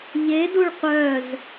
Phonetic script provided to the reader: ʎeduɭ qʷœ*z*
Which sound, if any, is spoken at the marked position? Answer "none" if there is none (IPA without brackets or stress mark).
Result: z